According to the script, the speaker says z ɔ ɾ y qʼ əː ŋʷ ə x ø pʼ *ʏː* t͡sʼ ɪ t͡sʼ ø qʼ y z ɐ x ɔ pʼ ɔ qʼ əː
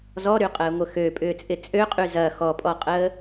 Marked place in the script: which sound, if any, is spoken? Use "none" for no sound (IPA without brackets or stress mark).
ʏː